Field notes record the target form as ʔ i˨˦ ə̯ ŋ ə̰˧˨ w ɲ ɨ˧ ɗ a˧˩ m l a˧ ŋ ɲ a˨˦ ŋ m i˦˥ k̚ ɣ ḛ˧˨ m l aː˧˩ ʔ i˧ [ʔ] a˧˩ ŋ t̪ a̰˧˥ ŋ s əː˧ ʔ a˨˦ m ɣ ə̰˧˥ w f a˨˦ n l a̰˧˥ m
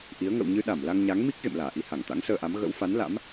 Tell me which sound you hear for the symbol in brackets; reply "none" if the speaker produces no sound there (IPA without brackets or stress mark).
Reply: h